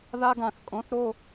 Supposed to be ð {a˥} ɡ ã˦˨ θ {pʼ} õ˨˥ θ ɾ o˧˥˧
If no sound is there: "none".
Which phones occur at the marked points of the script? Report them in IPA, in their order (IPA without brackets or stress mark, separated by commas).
a˥, kʼ